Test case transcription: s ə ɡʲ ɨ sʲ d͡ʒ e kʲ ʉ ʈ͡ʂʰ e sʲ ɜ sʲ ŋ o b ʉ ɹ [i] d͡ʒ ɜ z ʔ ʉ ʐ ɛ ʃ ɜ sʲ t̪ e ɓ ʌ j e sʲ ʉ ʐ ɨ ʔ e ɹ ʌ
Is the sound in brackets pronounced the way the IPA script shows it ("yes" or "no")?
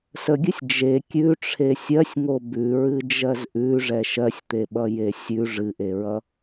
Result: no